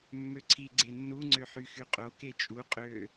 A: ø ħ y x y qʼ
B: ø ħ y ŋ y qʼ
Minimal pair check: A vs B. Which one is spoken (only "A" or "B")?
A